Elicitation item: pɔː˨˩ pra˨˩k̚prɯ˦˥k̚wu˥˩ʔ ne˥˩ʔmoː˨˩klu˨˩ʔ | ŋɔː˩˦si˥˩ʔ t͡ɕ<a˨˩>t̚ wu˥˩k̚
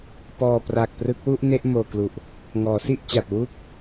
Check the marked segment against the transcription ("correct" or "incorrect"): correct